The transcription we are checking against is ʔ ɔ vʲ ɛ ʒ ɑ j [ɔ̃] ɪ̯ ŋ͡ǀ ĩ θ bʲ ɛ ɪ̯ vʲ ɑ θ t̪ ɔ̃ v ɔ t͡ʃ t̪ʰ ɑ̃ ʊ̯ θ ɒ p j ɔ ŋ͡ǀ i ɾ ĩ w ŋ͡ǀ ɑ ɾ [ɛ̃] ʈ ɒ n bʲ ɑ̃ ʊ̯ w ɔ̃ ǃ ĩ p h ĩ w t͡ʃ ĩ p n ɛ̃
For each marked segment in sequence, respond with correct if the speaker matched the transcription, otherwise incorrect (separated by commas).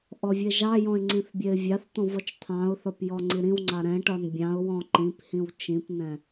correct, correct